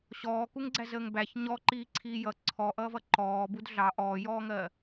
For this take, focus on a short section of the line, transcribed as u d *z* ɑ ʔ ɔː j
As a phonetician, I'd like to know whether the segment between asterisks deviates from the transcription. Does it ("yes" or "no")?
yes